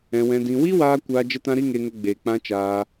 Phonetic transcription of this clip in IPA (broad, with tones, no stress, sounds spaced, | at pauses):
ɛ̃˧ w ɛ̃˧ d ĩ˧ w i˦ w aː˧ kʷ aː˧ d͡ʒ ə˧ t ã˧ ɾ i˧ ŋ e˧ ŋ ə˧ ɡ͡b eː˨ k͡p ã˧ t͡ʃ aː˧